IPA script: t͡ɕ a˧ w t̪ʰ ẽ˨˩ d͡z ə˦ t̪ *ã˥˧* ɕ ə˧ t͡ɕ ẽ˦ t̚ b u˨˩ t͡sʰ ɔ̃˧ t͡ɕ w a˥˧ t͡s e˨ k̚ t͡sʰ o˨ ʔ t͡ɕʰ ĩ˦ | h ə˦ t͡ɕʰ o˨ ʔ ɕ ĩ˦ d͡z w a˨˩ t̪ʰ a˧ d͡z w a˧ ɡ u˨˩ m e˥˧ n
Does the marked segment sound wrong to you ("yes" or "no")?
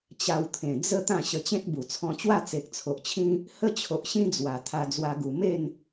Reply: no